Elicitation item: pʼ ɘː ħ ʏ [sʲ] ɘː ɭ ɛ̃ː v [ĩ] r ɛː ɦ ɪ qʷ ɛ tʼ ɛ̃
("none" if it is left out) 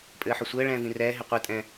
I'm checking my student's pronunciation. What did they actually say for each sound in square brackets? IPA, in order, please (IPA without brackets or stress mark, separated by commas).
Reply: sʷ, ĩ